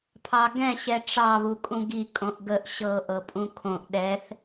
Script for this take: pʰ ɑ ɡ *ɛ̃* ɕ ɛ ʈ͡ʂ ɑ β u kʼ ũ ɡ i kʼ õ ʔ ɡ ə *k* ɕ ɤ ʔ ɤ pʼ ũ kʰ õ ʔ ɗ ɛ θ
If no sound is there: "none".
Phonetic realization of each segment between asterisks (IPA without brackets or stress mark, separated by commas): ɛ̃, ʔ